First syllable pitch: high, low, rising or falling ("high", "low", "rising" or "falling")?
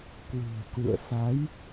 low